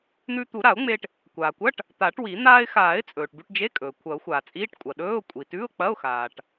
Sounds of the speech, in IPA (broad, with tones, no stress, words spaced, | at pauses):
n̪ʉ˧t̪u˨˩˦ ɾa˨˩˦ʊ̯ŋ͡me˧ʈ | kʷaː˩kʷɐ˧˥˧ʈ | t̪a˨˩˦ʈwi˨˩˦ n̪aː˧ɪ̯xaː˨˩˦ɪ̯ t͡sʼɵː˩ʈbʉ˧ʈd͡ʒe˧˥˧kʼɵː˩ kʷʰɐ˨˩˦ʊ̯xʷaː˩t͡sʼiː˧˥˧ʈ kʷʼɐ˩ɗɵː˧˥˧ʊ̯ kʷʼi˩tʉ˧˥˧ʊ̯k͡pɐ˧˥˧ʊ̯xaː˩ʈ